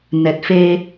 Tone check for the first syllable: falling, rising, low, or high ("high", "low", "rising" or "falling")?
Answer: low